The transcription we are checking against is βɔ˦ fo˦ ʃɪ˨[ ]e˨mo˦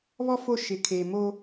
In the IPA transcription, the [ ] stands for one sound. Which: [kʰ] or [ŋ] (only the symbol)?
kʰ